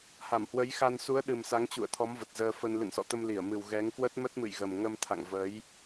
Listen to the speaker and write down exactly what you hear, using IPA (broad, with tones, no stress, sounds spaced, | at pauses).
h a˧˩ m h w ə˨˦ j x a˧ n s u˨˦ ə̯ ɗ ɨ˨˩ m s a˨˦ ŋ t͡ɕ ṵ˧˨ ə̯ t̪ʰ ɔ˨˦ m v ə˨˩ t̚ z əː˧ f ə˧ n l ɨ̰˧˨ n s ɔ̰˧˨ t̪ ə˧ m l i˧˩ ə̯ m ɨ˨˩ w ɣ ɛ˨˦ ŋ k w ə˦˥ t̚ m ə˦˥ t̚ m ɨ̰˧˨ j ɣ ə˨˩ m ŋ ə˧ m t̪ʰ a̰˧˨ ŋ v ə˨˦ j